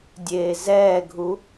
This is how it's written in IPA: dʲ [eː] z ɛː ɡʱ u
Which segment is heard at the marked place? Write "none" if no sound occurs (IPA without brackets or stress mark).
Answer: eː